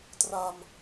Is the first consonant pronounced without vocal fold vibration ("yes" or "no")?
yes